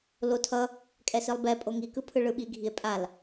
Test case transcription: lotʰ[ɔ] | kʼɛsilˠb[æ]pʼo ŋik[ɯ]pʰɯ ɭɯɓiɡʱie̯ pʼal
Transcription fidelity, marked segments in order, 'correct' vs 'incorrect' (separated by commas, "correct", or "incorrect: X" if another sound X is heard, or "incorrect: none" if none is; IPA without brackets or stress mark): incorrect: ʌ, incorrect: ɛ, correct